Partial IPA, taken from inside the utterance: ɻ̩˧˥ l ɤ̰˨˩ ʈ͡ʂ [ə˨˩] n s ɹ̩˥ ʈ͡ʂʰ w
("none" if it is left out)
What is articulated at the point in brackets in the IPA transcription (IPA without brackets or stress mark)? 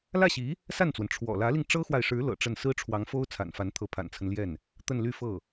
ə˥˩